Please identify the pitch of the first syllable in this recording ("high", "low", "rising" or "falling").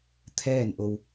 falling